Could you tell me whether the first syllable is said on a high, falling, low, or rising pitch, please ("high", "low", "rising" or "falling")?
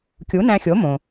rising